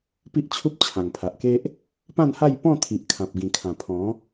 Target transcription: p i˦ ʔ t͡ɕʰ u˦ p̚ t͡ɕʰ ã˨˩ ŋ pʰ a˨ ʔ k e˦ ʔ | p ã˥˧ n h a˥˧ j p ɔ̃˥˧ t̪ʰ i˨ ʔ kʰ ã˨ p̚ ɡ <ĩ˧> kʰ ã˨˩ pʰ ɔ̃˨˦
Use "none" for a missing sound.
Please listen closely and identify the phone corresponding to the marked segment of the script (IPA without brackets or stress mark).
ĩ˨˩